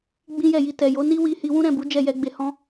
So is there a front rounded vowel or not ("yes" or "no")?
no